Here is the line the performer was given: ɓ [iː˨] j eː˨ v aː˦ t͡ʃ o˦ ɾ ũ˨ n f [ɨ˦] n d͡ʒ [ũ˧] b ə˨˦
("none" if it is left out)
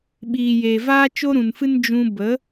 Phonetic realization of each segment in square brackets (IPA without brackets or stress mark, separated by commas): iː˨, ɨ˦, ũ˧